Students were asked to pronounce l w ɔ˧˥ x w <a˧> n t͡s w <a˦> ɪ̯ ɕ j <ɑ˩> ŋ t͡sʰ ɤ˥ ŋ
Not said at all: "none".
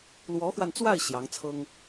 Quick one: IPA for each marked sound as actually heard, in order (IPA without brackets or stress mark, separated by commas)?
a˧, a˥˩, ɑ˧˥